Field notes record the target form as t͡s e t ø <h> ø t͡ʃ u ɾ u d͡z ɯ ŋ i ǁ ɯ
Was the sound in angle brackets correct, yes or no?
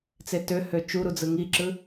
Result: yes